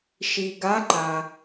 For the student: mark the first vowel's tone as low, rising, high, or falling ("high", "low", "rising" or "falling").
low